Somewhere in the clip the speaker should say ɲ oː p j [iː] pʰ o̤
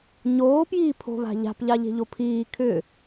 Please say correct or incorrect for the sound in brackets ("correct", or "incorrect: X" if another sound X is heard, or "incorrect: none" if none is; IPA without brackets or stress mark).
correct